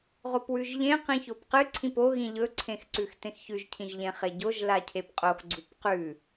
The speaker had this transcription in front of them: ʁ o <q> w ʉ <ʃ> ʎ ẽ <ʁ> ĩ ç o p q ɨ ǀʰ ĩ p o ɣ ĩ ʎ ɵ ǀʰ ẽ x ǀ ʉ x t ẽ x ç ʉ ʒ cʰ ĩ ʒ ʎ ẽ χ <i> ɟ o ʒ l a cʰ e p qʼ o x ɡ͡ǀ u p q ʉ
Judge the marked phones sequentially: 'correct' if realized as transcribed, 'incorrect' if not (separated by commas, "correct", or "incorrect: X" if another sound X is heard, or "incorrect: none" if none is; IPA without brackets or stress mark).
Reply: incorrect: p, incorrect: ʒ, incorrect: q, incorrect: e